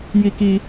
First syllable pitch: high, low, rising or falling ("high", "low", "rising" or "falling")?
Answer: high